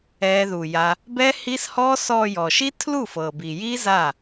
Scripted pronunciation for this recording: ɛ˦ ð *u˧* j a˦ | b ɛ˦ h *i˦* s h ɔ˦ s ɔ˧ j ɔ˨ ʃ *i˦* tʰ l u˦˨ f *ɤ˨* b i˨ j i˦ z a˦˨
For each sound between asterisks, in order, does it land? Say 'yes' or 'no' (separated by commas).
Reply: yes, yes, yes, yes